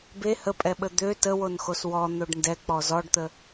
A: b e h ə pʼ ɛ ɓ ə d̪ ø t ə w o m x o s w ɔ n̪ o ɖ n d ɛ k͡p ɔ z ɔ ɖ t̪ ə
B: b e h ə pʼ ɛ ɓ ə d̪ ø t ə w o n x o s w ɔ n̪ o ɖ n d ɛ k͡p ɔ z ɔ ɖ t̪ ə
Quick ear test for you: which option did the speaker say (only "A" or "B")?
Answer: B